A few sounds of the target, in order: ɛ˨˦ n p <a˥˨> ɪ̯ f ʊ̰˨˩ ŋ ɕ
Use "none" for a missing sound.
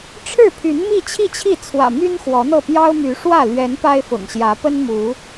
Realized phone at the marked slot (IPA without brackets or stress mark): a˦